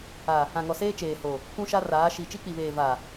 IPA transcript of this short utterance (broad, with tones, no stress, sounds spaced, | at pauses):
a˨ | ã˨ ŋ ɔ˨ s eː˦ t͡ʃ eː˨ h o˨ | kʷ ũ˦ ʃ a˦ r aː˨˦ ʃ i˨ t͡ʃ i˦ k͡p i˨ β eː˨ v a˨